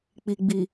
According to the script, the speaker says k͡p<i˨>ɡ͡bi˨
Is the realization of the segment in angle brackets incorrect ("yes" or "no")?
no